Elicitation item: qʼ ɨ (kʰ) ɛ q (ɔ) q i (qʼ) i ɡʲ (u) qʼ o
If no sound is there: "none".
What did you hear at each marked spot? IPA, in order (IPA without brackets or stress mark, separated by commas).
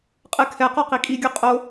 kʰ, ɔ, kʼ, u